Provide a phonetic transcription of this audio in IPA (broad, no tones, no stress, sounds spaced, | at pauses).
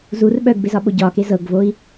z u r ɓ œ ɡ b e z ɒ ɓ o ɟ ɒ k e z ɤ ɡ v o i̯